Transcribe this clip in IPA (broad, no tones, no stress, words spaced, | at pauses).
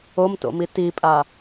omto̰mi tipʼa